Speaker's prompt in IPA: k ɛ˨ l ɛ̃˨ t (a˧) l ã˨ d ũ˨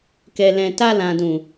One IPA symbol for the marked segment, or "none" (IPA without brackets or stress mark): a˧